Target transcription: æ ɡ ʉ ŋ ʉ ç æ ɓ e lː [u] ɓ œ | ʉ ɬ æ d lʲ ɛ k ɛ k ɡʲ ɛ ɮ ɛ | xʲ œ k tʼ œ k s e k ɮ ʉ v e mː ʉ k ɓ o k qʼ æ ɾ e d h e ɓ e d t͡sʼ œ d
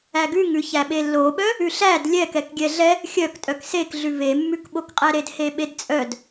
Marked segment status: incorrect: o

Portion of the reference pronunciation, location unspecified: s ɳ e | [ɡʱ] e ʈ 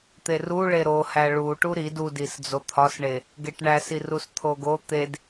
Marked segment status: incorrect: ɡ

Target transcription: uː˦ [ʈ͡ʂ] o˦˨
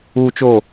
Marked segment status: incorrect: t͡ʃ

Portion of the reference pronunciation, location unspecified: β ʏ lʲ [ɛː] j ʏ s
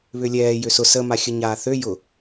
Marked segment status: correct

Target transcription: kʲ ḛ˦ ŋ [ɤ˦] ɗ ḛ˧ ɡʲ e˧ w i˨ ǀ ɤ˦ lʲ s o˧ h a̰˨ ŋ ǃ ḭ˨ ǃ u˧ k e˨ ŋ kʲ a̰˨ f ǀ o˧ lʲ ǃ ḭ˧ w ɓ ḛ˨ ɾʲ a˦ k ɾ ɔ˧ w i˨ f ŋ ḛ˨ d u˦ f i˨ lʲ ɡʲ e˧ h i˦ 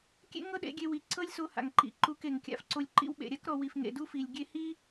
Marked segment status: correct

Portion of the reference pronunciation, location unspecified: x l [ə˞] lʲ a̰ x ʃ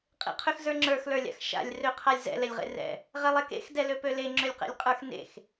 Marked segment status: correct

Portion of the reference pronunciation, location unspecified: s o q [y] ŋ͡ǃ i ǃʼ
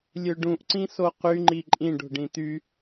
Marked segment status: correct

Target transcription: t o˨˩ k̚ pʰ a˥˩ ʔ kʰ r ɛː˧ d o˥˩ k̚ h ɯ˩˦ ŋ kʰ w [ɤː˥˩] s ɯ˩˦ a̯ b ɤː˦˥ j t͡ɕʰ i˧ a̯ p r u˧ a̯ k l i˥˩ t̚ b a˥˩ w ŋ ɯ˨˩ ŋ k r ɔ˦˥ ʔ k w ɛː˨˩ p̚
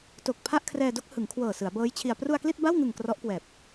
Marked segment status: incorrect: ɤː˨˩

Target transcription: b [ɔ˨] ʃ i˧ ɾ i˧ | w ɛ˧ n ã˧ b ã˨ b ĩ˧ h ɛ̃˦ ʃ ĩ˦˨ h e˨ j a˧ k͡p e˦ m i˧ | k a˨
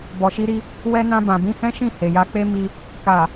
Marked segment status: correct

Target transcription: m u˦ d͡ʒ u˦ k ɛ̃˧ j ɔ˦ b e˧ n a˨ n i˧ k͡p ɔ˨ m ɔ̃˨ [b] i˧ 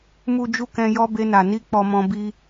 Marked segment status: correct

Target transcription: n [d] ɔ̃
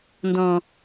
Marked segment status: correct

